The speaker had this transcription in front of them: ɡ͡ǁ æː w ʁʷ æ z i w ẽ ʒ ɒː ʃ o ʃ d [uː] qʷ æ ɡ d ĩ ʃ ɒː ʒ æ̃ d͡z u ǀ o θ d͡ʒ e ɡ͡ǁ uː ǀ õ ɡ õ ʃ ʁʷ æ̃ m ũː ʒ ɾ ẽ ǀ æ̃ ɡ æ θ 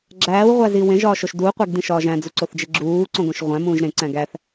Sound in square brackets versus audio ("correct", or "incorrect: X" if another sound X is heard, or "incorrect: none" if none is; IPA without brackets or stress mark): correct